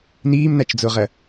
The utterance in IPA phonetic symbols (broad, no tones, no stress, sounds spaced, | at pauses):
n iː m n a t͡ʃ d͡z o ʁ ɐ